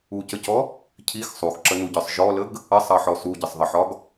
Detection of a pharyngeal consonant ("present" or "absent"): present